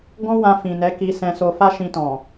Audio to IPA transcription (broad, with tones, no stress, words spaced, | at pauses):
ɡɔ̃˦wã˧ fĩ˨nɛ˨˦ ki˧sɛ̃˧so˧ fa˦ʃĩ˧tɔ̃˨